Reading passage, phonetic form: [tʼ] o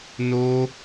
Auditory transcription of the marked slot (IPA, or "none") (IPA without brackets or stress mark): n